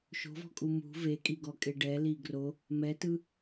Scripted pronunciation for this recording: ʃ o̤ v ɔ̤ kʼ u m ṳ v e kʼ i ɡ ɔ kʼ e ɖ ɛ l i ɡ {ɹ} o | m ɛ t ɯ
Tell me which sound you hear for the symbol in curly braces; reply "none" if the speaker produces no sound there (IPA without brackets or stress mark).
r